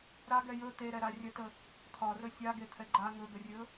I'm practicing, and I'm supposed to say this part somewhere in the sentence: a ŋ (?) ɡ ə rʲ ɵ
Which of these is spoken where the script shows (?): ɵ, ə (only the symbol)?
ɵ